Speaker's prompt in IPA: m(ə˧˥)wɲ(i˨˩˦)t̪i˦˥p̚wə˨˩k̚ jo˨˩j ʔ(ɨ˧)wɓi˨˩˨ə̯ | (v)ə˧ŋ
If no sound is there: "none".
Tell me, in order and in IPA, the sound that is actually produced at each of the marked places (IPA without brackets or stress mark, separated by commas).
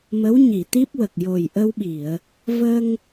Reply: ə˧˥, i˨˩˨, ə˧, v